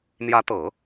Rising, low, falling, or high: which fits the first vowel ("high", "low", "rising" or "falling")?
rising